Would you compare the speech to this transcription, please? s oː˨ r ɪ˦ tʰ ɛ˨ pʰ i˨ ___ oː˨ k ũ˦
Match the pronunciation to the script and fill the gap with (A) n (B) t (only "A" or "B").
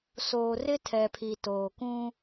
B